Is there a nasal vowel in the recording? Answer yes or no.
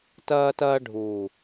no